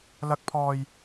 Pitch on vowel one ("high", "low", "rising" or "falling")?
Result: rising